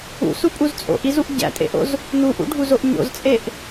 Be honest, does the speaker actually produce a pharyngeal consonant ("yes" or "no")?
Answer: no